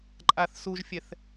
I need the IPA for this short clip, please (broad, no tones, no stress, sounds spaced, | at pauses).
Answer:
ǃʼ a θ s u ʒ fʲ ɛ θ